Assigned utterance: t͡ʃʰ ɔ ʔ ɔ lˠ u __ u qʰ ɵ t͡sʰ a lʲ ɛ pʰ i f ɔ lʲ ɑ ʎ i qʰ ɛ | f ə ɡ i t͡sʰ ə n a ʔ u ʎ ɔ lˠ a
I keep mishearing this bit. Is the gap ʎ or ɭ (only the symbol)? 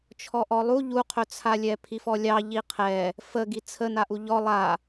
ʎ